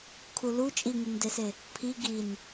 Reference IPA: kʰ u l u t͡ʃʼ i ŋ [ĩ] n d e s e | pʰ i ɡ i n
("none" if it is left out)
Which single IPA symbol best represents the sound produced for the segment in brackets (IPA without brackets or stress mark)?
i